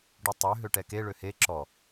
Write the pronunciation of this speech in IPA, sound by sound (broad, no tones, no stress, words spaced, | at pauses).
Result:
ɖutˤø ɦøʈɛke ɭøhe ǁɔ